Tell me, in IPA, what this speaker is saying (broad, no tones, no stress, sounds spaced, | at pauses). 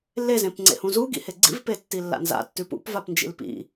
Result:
lː e z ẽ p ŋ͡ǀ ḛ h ũ z u ɡ ḭ h e ɡ͡ǀ ḭ v p e tː i lː a̰ n z a̰ tː ʉ p ṵ p v a p n d͡ʒ ḭ l p ḭ